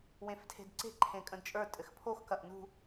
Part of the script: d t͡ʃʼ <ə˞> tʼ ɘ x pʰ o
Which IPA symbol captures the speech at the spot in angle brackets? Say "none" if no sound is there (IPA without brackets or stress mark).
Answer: ə˞